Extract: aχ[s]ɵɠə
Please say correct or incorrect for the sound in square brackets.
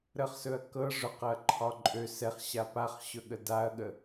incorrect